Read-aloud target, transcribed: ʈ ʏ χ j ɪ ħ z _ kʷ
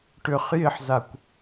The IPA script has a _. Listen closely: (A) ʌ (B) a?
B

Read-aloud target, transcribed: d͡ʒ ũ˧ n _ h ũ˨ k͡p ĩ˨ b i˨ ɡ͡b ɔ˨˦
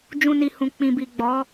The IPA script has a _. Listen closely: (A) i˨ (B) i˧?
A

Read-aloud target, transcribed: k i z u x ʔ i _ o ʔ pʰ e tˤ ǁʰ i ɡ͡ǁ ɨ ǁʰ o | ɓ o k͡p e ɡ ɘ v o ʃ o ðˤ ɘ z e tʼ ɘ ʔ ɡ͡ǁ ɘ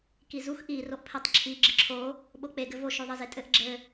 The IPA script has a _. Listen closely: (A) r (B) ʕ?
A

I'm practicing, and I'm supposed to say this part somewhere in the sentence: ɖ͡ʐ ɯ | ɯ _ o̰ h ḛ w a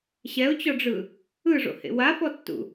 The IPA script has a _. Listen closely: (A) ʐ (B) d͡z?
A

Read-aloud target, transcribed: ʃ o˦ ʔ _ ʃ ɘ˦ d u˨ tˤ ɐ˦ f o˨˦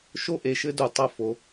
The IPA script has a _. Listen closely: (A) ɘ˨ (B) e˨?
B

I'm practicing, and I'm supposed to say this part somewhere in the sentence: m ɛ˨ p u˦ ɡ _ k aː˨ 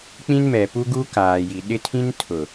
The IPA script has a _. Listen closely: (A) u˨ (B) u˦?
B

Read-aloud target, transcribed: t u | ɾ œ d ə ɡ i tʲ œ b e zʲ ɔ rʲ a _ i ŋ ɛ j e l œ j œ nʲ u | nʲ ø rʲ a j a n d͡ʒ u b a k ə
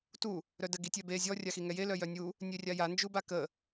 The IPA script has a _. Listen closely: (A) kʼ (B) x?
B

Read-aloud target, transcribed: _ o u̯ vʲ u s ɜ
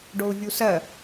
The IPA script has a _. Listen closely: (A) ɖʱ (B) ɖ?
B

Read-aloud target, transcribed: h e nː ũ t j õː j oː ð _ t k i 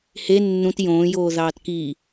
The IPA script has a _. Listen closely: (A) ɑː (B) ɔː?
A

